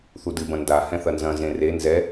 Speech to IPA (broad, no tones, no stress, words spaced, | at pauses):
θudɨbɐ̃ nda hɛ̃θɐnzɐ̃ zẽre nzɛ